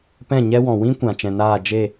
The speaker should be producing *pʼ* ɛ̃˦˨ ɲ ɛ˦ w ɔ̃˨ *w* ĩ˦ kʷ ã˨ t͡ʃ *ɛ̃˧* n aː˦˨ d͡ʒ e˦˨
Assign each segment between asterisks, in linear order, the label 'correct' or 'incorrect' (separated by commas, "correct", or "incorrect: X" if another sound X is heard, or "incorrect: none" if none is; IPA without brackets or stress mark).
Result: incorrect: p, correct, incorrect: ɛ̃˨